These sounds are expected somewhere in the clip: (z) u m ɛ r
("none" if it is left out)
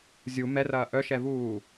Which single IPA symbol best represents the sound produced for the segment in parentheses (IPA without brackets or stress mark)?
zʲ